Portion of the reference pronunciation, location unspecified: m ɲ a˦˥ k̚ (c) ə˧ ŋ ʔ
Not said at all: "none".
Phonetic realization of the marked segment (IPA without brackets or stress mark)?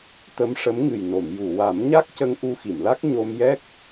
c